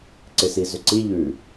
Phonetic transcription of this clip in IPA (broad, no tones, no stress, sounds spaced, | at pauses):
ǀ ɪ s i z ʏ ǀ i ʎ ʉ